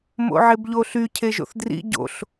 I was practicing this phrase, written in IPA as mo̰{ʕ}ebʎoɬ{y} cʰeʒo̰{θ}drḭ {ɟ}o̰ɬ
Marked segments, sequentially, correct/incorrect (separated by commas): correct, correct, correct, correct